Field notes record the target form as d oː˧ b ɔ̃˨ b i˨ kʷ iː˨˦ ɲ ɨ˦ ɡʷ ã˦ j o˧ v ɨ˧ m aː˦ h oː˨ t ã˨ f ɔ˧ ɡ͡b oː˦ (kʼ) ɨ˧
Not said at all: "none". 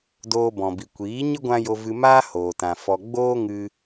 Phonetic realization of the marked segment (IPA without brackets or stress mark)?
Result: ŋ